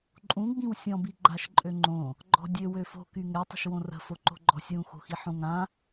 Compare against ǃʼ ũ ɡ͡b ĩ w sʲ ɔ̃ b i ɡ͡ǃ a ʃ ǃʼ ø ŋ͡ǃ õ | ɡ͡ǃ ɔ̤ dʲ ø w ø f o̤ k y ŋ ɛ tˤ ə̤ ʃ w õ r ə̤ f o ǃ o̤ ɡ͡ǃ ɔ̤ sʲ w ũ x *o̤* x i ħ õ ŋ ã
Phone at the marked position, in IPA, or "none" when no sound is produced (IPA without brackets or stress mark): o̤